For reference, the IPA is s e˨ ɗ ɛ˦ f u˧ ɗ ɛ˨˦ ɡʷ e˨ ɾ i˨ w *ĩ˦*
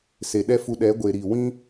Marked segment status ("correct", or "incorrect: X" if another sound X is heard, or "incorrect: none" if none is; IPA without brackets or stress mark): correct